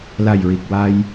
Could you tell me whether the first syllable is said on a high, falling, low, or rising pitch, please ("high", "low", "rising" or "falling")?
low